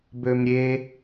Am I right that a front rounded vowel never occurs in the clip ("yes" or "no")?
no